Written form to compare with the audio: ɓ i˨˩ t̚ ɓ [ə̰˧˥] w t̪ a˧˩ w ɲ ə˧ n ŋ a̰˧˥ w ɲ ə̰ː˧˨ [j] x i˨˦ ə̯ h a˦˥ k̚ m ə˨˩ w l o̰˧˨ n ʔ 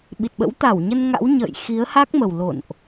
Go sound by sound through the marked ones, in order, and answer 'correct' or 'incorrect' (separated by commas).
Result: correct, correct